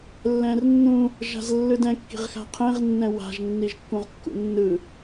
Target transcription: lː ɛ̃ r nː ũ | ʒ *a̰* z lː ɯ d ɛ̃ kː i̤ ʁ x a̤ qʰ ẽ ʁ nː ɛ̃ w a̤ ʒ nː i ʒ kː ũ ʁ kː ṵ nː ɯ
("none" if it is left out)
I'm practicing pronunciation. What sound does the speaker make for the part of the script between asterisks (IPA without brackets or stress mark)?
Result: a̤